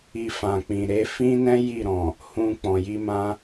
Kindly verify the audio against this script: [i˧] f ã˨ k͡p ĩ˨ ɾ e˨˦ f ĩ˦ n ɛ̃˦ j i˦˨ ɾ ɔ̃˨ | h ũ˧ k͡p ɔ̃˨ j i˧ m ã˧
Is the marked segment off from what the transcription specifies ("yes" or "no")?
no